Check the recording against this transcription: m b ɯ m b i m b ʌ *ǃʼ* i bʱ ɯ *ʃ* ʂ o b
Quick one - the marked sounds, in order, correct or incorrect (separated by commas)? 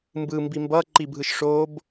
incorrect, correct